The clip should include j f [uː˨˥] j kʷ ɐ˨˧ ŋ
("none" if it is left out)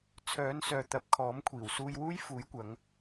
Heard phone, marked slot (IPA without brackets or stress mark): uː˨˥